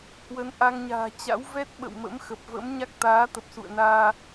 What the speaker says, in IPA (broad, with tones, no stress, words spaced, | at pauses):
hwə˨˦nʔa˧ŋɲa̤ː˨˩ t͡ɕa̰˧˥wvɛ˦˥t̚ɓə̰˧˨wmə̰˧˥m xə˨˩p̚və̰˧˥mɲa˦˥k̚ t̪aː˨˦t̪ə˨˩p̚sṵ˧˨ə̯naː˧